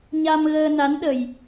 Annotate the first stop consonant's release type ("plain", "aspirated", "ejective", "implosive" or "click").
implosive